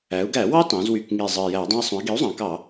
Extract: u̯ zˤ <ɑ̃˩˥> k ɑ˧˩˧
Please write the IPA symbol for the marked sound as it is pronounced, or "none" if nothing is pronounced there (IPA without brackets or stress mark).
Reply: ɑ̃˩˧